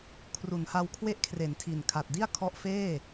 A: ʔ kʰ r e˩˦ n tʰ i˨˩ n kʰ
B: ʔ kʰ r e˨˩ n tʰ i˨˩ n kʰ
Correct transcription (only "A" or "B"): A